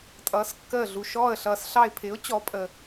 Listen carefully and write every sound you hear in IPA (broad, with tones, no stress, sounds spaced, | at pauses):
tʼ ʌː˩˥ s kː əː˧˩ ɮ u˩ ʃ ɔː˧˩ ə̯ ɬ ʌː˩ s ɬ ɑ˧˩ ɪ̯ pʰ ɪ˩˥ ʊ̯ t͡ɕ ɔ˩˥ pʼ ə˩